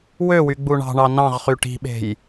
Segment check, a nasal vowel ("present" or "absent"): present